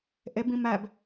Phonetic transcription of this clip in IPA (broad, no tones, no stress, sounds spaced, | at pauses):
ʔ e b ĩ m æ b